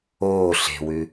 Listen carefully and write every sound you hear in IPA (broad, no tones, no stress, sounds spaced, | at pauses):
oː ɬ e̤ w ʉ